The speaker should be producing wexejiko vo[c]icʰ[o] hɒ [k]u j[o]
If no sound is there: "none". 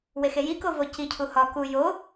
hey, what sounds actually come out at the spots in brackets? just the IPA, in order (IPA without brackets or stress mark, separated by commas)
c, u, k, o